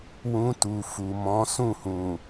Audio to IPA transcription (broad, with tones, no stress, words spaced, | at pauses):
wũ˧tu˨ fu˨ mɔ̃˨˦ sũ˦˨hũ˨